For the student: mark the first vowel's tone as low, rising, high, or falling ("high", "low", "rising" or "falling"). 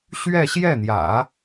falling